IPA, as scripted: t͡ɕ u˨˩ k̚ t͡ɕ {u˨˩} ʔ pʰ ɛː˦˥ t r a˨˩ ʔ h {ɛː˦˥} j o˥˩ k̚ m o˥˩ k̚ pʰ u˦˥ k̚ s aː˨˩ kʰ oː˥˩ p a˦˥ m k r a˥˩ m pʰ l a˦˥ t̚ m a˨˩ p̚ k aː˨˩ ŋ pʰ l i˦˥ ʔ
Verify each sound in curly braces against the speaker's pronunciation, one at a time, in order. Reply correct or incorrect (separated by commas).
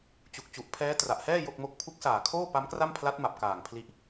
correct, incorrect